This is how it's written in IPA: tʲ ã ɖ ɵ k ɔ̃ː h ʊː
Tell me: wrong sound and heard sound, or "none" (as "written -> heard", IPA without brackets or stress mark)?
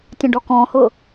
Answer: ɵ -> ɔ